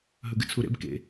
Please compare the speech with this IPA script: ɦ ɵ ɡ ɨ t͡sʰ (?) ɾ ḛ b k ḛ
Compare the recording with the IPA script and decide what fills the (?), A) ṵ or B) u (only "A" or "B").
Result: B